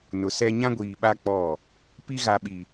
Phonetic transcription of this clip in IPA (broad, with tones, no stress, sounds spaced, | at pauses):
n ʊ˨ s ɛ˦ ɲ ã˦ ɡʷ iː˨ ɓ a˦ k͡p ɔ˦˨ | p i˦ ɣ a˨ ɓ i˨